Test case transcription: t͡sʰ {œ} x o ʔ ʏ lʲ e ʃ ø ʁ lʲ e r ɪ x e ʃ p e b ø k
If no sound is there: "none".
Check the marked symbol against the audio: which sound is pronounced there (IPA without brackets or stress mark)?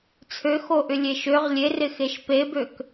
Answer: ø